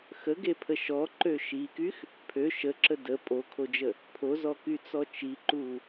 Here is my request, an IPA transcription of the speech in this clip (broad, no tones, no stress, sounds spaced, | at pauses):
x ə ɡ e pʰ ə ʃ ɔ ǃ ø ʃ i k y x | pʰ ø ʃ ə ǁ ə d ə pʼ o kʰ o d͡ʒ ə | pʰ o z ɔ k y t͡s ɔ t͡ʃ i ǃ u